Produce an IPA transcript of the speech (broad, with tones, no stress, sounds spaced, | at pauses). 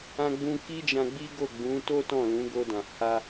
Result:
ã˧ ɡ͡b ũ˧ k i˦ d͡ʒ ã˧ ɡ͡b i˦ ɡ o˦˨ ɡ͡b ũ˨˦ t o˦ t ɔ̃˦˨ l ũ˨˦ ɡ o˧ d ã˨ h a˧